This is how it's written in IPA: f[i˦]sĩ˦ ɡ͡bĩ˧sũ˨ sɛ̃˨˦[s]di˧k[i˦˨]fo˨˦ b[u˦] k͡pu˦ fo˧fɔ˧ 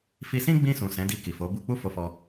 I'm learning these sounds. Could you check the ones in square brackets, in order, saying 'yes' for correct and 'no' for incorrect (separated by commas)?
no, no, no, yes